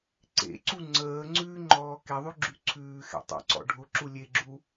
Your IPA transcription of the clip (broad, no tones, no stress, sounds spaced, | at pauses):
ǀ ḛ ǀ u ŋ͡ǀ əː ŋ͡ǀ ʉ ŋ͡ǃ ɔː k e ðˤ ʉ ɡ͡ǁ ʉ ǀʰ ʉː x ɛ̰ tˤ ə̰ ǀ ɔ̰ ɖʱ ʊ ǁ u lʲ e ɡ͡ǁ u